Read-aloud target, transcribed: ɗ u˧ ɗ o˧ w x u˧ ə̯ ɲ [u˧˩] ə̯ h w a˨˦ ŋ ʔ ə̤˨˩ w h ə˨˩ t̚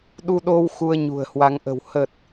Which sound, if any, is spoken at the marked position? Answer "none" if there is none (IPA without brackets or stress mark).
ṳ˨˩